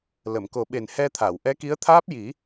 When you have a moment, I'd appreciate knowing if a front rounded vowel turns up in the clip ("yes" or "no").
no